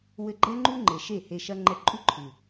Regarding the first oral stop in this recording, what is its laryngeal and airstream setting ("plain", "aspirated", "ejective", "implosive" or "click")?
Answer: click